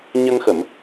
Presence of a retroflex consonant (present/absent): absent